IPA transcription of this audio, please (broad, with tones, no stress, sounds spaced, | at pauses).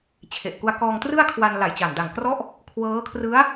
t͡ɕʰ e˨˩ ʔ k u˧ a̯ k ɔː˧ ŋ t r ɯ˥˩ a̯ kʰ w a˧ n l a˨˩ j t͡ɕ a˨˩ n d a˨˩ ŋ k r ɔ˦˥ ʔ | kʰ w ɤː˦˥ kʰ r ɯ˦˥ a̯